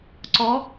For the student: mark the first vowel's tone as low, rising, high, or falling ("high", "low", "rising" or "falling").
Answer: rising